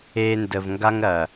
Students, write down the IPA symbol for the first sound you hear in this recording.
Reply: e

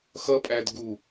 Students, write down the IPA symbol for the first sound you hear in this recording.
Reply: x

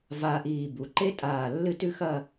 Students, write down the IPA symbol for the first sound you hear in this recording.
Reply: v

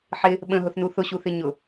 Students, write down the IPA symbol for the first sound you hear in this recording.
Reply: ħ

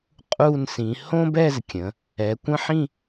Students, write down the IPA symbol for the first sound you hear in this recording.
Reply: qʼ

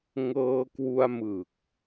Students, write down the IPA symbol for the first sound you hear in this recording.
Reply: ŋ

